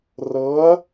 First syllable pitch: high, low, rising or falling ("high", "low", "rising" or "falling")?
rising